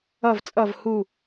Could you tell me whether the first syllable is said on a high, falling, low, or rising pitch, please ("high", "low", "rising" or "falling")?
falling